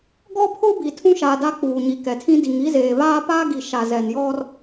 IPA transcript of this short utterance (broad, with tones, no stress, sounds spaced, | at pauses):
ɡ ɔ˦ pʰ ʊ˦ b i˨ tʰ ũ˦ ʃ aː˨ d a˦ k͡p uː˨ ɲ i˨ k ɛ˨ tʰ ĩ˦ d i˨ ŋ i˦ z eː˨ β aː˦ p aː˦ ɡ i˨ ʃ a˨ z ɛ˨ n j ɔ˦ r